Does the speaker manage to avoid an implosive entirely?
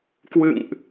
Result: yes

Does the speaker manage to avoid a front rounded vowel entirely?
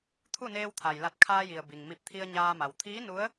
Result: yes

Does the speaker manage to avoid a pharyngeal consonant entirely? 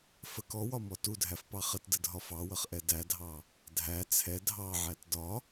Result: no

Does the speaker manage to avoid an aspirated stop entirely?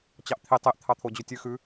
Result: no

